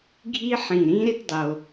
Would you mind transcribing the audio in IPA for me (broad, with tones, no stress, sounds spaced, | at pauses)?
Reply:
ɡʱ i˥ ħ ĩ˧˩ ɾ ĩ˥ ɾ ɪ˥ t dˤ o˧